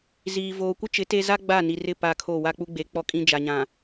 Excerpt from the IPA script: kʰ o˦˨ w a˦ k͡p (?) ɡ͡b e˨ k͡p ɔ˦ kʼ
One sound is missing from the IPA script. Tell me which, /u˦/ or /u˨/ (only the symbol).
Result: u˦